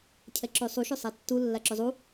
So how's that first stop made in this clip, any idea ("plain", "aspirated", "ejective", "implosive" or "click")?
aspirated